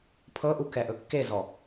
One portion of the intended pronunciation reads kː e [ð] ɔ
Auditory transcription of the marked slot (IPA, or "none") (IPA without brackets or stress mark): z